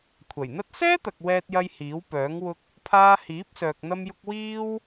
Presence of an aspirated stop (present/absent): present